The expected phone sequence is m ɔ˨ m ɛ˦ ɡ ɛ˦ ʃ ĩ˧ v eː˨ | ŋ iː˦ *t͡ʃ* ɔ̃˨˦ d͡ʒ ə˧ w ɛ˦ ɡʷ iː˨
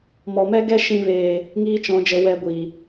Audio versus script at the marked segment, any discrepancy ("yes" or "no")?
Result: no